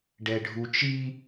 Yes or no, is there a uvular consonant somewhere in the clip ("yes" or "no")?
no